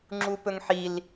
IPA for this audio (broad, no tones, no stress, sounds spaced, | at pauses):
ŋ͡ǁ u p ɵ ŋ ħ i l